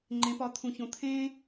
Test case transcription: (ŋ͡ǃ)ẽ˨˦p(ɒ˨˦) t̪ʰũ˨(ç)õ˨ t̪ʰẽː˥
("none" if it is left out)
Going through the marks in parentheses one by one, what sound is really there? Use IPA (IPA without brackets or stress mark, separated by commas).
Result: ŋ͡ǃ, ɒ˨˦, ç